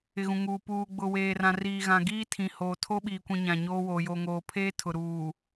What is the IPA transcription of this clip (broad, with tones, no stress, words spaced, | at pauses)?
ɪ˨ɣũ˨ŋuː˨ puː˨ ɡ͡bʊ˨weː˨rã˨ riː˨ɣã˨ ɡiː˦tʰĩ˨hoː˨ tʰo˦ɓiː˨kʷĩ˨ ɲã˨ɲoː˦woː˨ jo˨ŋoː˨pʰeː˦ tʰʊ˨ ɾuː˨